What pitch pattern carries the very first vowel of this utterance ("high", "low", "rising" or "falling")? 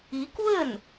rising